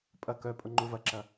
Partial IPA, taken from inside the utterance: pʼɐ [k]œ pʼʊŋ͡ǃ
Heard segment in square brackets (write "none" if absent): k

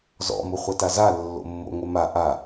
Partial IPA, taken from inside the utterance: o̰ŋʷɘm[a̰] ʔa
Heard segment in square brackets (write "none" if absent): a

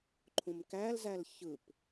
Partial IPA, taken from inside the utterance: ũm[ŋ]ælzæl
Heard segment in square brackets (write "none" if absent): k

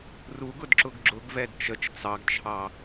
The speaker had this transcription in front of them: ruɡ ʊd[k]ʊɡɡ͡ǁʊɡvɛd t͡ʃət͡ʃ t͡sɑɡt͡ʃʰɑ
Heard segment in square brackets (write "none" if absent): ǁ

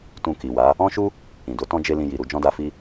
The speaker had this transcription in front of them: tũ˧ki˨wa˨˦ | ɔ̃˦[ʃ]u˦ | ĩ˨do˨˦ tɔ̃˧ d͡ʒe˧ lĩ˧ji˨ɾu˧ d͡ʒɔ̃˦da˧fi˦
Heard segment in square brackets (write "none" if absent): ʃ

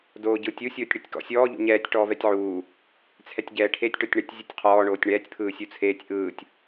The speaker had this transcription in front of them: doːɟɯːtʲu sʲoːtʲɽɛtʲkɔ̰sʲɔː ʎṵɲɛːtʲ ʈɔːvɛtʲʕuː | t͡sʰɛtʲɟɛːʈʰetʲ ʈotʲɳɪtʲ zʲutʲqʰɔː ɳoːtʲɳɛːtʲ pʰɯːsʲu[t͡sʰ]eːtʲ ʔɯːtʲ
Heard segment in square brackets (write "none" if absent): t͡sʰ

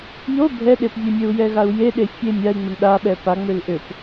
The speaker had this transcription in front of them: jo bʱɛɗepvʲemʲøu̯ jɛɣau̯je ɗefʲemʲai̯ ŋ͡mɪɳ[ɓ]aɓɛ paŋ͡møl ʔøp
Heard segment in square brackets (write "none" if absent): ɗ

